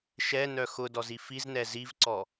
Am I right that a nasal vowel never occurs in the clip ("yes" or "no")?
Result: yes